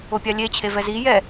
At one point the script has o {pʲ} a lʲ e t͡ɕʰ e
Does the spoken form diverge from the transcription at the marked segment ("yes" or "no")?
no